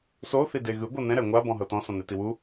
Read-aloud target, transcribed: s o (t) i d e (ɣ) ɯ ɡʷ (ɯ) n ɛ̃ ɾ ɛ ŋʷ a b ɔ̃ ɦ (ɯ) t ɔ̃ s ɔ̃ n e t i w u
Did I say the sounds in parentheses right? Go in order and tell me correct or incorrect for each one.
incorrect: θ, correct, incorrect: ɤ, incorrect: ɤ

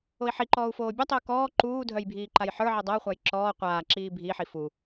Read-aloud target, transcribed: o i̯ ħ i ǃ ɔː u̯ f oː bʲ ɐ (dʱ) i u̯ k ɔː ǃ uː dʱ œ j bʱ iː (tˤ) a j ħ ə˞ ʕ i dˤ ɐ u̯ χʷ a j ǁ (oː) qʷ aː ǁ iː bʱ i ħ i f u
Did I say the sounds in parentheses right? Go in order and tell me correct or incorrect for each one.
incorrect: tˤ, incorrect: ǃ, incorrect: ɔː

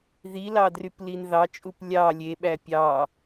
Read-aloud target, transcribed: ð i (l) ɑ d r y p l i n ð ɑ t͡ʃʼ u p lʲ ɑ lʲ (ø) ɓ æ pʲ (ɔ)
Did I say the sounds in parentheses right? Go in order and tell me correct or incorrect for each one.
correct, incorrect: e, incorrect: ɑ

